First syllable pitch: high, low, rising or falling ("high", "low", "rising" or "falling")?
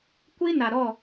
high